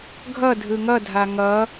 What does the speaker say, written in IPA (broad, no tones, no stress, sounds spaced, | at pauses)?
ɡʱ ʌ dʱ ɯ ŋ ʌ dʱ a ŋ ʌ